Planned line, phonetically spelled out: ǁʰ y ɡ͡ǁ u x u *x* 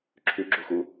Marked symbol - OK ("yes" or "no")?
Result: no